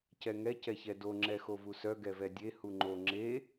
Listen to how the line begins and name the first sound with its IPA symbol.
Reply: c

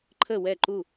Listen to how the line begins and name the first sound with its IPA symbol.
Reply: ǃʰ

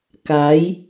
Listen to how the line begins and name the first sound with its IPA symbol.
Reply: k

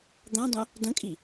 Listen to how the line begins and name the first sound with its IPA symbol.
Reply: d̪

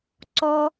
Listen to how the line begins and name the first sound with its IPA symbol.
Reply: ǀ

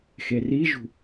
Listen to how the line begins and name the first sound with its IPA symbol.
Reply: x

